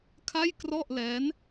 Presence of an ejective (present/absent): absent